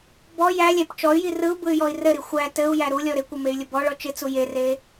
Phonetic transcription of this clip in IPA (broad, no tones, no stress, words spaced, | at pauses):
bɔ jælʲæp t͡ʃɔy̯ji rɯu̯bɯy̯ jɔi̯rɘɾi xʷæ tɘu̯ jæɾulʲɔ ɾɪkʷə mey̯lʲəbɔɭɔ t͡ʃɪt͡su jere